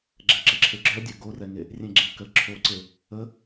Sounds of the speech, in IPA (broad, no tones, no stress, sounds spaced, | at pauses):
ɡ͡ǁ ɛ ǁ ə ǁʰ e ɡ͡ǁ œ dʲ ə ɡ o r ɛ ŋ e | rʲ ẽ ɡ͡ǁ ẽ k ə ǁʰ o ǀ e | ə